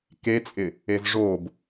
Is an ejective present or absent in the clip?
present